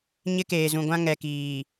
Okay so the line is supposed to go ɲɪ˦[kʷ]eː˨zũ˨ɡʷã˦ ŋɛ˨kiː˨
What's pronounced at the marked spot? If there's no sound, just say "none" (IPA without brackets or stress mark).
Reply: k